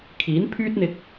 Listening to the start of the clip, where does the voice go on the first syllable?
rising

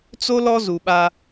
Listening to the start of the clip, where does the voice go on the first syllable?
high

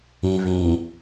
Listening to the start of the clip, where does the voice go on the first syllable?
low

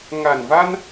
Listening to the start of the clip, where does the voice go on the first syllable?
low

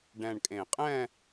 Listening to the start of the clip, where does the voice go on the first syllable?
low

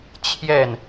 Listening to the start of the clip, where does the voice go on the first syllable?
falling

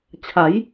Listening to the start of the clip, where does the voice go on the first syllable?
rising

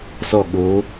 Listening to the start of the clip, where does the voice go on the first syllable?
falling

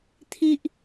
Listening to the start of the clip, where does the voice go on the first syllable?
high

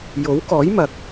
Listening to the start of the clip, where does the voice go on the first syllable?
rising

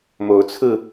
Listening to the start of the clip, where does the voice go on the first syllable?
rising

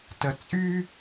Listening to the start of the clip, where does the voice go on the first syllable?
low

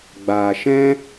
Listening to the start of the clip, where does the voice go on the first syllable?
low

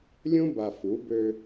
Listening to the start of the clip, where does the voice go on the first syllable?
high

